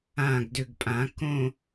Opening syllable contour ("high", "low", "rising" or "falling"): low